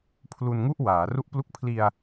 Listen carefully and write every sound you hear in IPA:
pʰ l u˧ n ŋ u˥˩ ʔ w aː˩˦ r u˥˩ ʔ p l u˥˩ k̚ pʰ l i˧ a̯

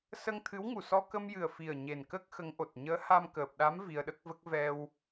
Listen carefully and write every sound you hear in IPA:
s ə˧ ŋ t̪ʰ ɨ˧˥ w ŋ u˨˩ s ɔ˧ k ə˧ m j ɨ˨˩ ə̯ f i˨˩ ə̯ ɲ e˨˩ n k ə˦˥ k̚ x ə˧˥ ŋ ʔ o˨˩ t̚ ɲ əː˧˥ h a˧ m k əː˨˩ p̚ ɗ a˧˥ m v i˧ ə̯ ɗ ə˦˥ k̚ v ə˦˥ k̚ v ɛ˧ w

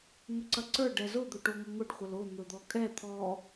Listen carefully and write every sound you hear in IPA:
ŋ ɵ ǀ ɐ ǀ ə˞ ɖ ɛ z ʊ d̪ ɵ ʈ o ŋ ʊ ŋ ʊ ɖ χʷ ə l o n̪ ɵ d̪ ɔ kʼ ɛ t̪ʰ ɔ

